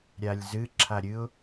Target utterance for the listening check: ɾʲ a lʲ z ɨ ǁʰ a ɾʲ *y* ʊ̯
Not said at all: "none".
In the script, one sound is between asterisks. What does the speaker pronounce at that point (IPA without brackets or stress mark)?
ɨ